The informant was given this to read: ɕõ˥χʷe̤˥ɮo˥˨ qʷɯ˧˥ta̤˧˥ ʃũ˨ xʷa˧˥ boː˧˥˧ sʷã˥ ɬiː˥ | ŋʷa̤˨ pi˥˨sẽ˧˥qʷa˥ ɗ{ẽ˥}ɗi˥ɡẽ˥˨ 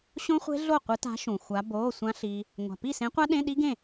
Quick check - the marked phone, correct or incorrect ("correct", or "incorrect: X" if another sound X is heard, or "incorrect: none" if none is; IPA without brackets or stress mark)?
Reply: incorrect: ẽ˧˥˧